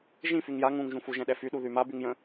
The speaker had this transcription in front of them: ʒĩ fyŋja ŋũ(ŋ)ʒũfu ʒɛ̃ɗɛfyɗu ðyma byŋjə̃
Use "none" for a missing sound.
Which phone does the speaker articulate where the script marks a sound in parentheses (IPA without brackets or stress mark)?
ŋ